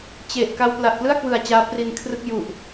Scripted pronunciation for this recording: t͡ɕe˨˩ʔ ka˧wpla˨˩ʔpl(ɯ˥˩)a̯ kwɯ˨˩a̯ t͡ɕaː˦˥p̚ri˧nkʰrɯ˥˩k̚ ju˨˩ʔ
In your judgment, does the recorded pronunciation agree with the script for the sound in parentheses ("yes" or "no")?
yes